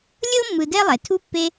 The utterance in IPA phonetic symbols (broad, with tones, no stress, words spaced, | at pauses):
lʲɤ˥mːɯ˨ dɛ˦lˠɛ˩ tʰu˥ pːe˥